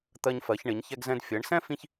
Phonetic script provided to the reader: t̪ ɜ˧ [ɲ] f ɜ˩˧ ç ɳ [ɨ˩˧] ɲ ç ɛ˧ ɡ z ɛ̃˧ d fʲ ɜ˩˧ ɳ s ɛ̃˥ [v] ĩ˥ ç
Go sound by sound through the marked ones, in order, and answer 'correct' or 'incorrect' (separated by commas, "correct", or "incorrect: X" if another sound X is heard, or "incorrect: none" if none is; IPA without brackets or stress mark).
correct, incorrect: ɪ˩˧, incorrect: f